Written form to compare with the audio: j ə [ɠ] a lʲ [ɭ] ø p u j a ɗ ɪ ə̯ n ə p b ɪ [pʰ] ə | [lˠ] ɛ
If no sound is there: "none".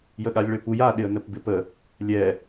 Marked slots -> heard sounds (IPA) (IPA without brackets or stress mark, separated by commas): ɠ, ɭ, p, lʲ